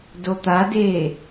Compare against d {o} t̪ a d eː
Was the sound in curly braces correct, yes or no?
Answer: yes